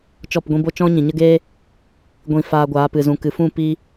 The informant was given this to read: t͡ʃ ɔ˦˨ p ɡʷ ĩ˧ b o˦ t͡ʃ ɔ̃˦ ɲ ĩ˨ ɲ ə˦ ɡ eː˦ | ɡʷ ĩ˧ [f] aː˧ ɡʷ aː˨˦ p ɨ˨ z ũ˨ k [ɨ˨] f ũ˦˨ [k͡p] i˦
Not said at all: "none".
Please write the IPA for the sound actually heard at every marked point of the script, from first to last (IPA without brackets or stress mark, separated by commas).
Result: f, ɨ˨, p